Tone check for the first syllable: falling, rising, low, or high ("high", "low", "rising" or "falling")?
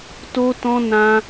high